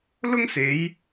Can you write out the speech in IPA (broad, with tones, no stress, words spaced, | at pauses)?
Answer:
lʊ˥ŋse˨˧j